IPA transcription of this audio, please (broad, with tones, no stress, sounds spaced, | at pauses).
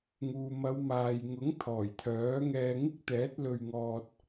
ŋ uː˨ m ɐ˨˧ w m aː˨ j ŋ ʊ˨˥ ŋ t̪ʰ ɔː˨˩ j t̪ʰ œː˨˥ ŋ ɛː˧ ŋ ɪ˥ k̚ t̪ ɛː˨˥ t̚ l ɵ˧ ɥ ŋ ɔː˧ t̚